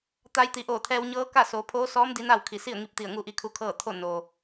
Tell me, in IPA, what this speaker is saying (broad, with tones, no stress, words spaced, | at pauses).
t̪a˧jt̪i˩˧ ʔoː˧˩t̪ʰɛː˧wɲɤː˧˥ka˥˨ soː˩˧pʰoː˧˥sɔː˧˥m di˧˥na˥˨wkʰi˧˩ si˥˨ə̯ŋi˧p̚t̪i˧˩ə̯ ŋu˥˨ʔi˧˥kʰu˧˥kʰɤː˥˨ t̪ʰo˥˨ noː˩